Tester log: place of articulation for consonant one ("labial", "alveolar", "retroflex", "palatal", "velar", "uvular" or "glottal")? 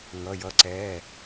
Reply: velar